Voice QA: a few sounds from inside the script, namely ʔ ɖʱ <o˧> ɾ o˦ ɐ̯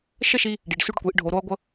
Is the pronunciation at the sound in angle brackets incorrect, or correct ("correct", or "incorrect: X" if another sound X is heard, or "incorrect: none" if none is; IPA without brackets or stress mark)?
correct